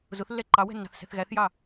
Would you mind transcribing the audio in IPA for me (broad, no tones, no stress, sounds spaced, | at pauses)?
z ʊ θ lː ɛ ǃ ɑ w ɛ̤ nː ɑ̤ θ s ɛ̤ θ ɣ æ θ j ɑ